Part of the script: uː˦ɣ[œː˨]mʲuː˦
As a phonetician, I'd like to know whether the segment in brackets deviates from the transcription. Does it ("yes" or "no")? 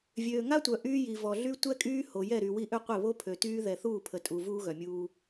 yes